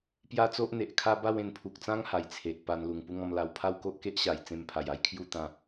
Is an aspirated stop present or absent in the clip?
present